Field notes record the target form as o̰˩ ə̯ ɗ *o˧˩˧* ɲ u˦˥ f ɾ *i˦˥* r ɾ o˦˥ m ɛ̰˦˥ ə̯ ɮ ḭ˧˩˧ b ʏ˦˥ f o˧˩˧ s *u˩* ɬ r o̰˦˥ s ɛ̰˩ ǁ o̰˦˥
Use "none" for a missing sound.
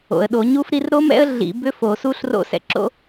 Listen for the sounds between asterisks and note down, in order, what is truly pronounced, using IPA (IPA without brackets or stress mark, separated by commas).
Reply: o˧˩˧, i˦˥, u˦˥